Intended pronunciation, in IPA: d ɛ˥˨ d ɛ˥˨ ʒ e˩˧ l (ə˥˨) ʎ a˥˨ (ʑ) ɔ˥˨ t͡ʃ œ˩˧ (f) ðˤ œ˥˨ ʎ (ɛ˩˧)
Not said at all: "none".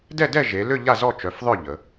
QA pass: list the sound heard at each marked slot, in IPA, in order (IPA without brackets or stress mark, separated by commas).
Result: ʏ˥˨, z, f, ə˩˧